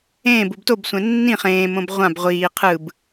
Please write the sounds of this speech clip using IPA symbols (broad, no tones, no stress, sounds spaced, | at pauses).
ẽː b u b t o b sʷ ɛ̃ nː ĩ χ ẽː m õ b ʁʷ ã b ʁʷ iː qʰ ɯ b